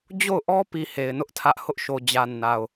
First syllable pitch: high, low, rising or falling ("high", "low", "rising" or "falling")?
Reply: falling